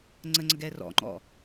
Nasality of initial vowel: oral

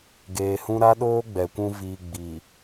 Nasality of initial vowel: oral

